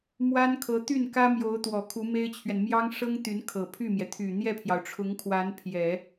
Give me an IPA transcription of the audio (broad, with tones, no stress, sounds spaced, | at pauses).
m w a˥ n kʰ ɤ˧˥ t̪ y˥˩ n k ä˥ m j o˧˥ ʊ̯ t̪ w ɔ˨˩ kʰ u˧˥ m e˥ ɪ̯ t͡ɕʰ ɥ ɛ˨ n m j ɑ˥ ŋ ʂ ɤ˥ ŋ t̪ y˧˥ n kʰ ɤ˨˩ pʰ y˥˩ m j ɛ˩ t̪ʰ y˨˩ n̪ j ɛ˥˩ pʰ j ɑ˩ ʊ̯ ʈ͡ʂʰ ʊ˧˥ ŋ kʰ w a˧˥ n pʰ j ɛ˨˩˦